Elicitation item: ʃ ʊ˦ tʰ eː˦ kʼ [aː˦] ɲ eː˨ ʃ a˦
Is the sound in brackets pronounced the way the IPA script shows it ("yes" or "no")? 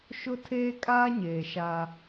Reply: yes